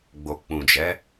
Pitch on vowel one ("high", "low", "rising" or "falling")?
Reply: low